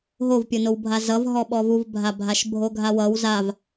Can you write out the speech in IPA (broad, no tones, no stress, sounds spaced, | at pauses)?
ɦ o v pʲ o n o w bʱ a z ʌ v ɦ ɔ ɓ ɔ v u v bʱ a bʱ a ʃ bʱ o ɡʱ a w ʌ w z a v